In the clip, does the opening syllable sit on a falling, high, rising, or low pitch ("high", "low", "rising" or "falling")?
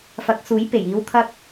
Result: rising